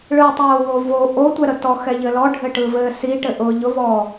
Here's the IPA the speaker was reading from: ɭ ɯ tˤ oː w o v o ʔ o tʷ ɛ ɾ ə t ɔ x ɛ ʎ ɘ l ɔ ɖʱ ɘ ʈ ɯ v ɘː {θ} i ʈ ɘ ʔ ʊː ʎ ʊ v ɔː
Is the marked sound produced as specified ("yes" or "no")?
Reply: no